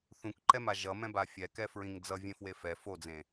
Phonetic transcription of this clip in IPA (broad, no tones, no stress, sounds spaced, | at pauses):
θ ũ k ǃ ɛ m a ʒ ʌ m ɛ̃ b a fʲ ɛ k ɛ f ɹ ĩ ŋ d͡z ʌ vʲ ẽ f w e f ɛ f o d͡z ẽ